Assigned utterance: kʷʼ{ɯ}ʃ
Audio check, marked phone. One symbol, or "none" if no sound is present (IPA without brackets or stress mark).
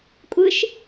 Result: ɯ